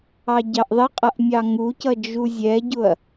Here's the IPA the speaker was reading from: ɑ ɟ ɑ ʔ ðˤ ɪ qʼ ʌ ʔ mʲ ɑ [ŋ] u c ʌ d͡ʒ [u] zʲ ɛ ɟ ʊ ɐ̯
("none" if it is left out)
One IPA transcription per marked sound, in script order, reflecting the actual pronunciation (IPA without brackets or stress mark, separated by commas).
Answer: ŋ, u